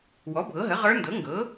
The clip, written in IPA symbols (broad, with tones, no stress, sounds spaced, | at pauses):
w ɔ˩˥ bʱ ɤ˩˥ ɦ ə˩˥ ʁ ə˞˧˥ n d ɤ˩˥ ŋ ɡ ɤ˩˥